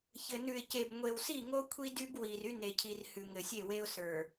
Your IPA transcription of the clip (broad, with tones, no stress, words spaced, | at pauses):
çɘ˨ nʉ˨ɪ̯ce˨b ŋʷe˨wsi˦˨ŋo˦ kʷʰi˦dy˦b wi˨r y˦ne˨cʰi˨r hʉ˨ŋɘ˨sʲe˦˨we˦ʊ̯ sə˞˨